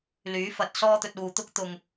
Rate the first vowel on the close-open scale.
close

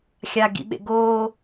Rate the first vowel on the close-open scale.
open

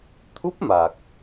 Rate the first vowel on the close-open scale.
close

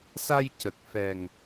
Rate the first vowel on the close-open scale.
open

